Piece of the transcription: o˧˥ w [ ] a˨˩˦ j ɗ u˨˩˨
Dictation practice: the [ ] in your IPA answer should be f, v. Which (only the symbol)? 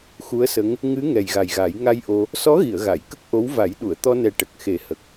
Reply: v